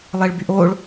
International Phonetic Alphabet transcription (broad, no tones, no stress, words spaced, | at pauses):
lˠeɭbyʔoɭ